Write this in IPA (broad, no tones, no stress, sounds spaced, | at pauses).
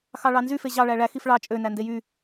x ɑ ɭ ɑ n z y f e ʑ ɑ ɭ æ ɭ æ x i f ɭ ɑ t͡ʃʼ ø n æ n d e j y